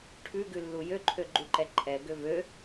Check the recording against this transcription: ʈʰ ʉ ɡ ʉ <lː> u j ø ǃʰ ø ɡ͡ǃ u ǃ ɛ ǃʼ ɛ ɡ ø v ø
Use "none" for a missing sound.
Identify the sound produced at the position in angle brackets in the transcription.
lː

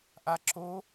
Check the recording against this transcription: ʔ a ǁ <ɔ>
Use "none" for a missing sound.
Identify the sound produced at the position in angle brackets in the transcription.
o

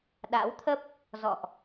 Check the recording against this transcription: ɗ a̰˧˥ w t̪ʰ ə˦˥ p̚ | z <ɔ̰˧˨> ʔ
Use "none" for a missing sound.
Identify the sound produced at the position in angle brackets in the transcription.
ɔ̰˧˨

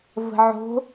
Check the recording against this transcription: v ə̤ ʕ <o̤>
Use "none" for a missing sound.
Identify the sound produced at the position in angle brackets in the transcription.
o̤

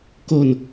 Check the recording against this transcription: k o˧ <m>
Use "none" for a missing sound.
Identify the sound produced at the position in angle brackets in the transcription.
n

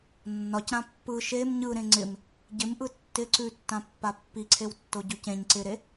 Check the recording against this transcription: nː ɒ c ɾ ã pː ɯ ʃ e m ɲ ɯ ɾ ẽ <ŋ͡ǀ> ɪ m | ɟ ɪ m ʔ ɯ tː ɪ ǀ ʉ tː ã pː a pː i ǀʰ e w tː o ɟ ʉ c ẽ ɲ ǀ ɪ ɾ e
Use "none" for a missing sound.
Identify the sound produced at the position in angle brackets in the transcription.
ŋ͡ǀ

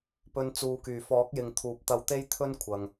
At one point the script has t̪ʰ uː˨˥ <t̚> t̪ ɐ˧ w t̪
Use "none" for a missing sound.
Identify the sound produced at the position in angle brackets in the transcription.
p̚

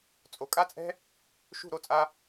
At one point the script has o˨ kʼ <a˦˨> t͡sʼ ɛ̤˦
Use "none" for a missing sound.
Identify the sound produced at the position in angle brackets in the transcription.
a˦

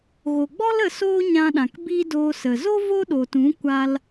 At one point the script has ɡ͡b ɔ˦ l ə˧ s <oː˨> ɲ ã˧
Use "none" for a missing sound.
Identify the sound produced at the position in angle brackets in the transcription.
oː˦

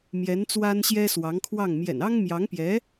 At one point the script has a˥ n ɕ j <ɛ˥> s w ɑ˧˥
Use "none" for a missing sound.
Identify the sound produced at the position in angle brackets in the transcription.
ɛ˥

